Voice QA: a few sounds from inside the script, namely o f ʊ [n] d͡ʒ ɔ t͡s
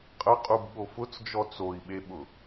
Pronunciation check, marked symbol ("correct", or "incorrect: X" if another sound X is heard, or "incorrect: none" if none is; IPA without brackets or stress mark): incorrect: t͡s